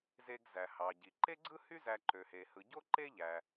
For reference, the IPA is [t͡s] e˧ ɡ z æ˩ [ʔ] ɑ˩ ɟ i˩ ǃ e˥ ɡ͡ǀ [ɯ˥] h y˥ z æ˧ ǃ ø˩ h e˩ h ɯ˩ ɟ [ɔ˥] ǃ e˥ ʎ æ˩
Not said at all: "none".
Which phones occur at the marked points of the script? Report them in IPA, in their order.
z, h, ɯ˥, o˥

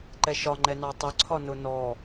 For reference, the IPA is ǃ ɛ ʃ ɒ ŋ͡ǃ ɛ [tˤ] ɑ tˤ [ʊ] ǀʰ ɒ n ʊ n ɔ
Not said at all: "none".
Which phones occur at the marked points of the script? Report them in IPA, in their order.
n, ʊ

